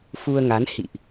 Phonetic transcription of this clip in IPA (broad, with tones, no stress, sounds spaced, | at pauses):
f u˧ ə̯ ŋ a˨˦ n h ḭ˧˨ ʔ